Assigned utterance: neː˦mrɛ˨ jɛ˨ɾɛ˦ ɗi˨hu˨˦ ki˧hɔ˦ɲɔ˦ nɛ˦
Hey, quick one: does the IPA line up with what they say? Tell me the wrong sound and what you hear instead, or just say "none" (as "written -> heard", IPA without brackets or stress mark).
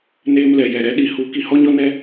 r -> l